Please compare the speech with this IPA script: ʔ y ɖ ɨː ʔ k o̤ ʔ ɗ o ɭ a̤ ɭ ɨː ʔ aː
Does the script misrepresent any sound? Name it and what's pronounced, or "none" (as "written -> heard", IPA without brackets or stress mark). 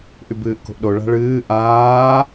ɖ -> b